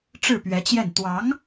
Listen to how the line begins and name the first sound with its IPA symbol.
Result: ʈ͡ʂ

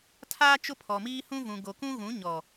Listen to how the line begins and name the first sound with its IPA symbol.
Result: tʰ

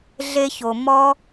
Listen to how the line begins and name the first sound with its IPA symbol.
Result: ɮ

